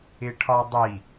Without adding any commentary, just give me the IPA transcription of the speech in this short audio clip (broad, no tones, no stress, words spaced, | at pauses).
ɪʈʰɒdˤi